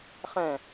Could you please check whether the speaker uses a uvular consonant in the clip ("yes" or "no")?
yes